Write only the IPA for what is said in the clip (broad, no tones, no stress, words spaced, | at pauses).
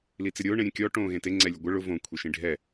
lit͡sɪɾʲʊː ɳẽɾʲẽkʲɔ ʈõːɣẽte ŋ͡ǀɛlʲʊɡʷɪ ɭʊ võ kʷʰeʃĩɖʱɛ